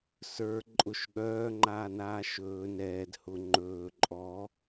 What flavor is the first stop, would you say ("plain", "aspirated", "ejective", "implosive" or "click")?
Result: click